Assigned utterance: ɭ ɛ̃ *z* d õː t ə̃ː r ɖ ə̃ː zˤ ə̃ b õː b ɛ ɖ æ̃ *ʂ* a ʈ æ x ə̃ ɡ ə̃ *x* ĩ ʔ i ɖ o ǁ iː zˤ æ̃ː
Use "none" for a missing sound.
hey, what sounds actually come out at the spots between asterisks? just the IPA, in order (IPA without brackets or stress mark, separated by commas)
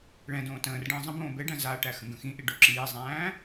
none, z, x